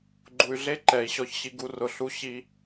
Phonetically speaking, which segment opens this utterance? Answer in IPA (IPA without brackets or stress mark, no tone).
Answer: ɡ͡ǃ